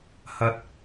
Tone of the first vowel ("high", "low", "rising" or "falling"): rising